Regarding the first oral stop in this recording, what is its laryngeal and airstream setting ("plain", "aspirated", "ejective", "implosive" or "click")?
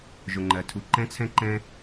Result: click